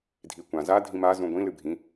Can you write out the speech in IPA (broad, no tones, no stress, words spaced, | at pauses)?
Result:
dʱikʷã za dʱĩma zũɡʷĩ lɨbʱĩ